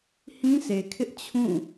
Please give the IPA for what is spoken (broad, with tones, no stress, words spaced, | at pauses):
hĩ˦sʰe˨kʰɪ˦ʔ t͡ɕʰũ˦˨